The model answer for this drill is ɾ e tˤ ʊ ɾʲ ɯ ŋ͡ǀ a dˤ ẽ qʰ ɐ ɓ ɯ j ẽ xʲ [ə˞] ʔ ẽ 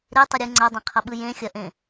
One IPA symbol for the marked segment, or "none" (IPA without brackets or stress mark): ɐ